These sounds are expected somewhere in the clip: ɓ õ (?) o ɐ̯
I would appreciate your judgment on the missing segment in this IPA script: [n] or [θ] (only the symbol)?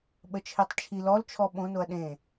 n